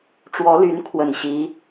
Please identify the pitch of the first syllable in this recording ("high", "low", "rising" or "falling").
rising